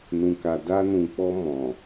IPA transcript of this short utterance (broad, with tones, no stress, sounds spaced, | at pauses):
n ũ˨ k a˨ d a˧ n ũ˨ k͡p ɔ˧ m ɔ̃˨